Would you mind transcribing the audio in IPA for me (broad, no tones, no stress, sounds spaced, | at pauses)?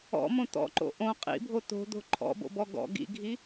ɔ̰ m õ t̪ ɔ̰ ǃ o̰ ʔ õ qʼ ḭ bʱ o t̪ o̤ d̪ o̤ ǃʰ ɔ̰ b o̰ b ɔ ɡ ɔ̰ ɡ ḭ ɡʱ i